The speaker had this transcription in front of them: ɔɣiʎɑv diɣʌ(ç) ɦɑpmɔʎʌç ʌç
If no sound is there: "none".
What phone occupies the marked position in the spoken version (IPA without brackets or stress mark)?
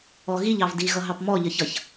none